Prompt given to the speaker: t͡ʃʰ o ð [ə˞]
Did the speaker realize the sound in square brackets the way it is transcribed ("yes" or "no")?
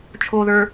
yes